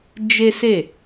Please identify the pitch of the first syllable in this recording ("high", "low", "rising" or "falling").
high